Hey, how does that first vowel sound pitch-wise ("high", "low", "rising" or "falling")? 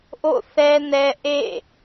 falling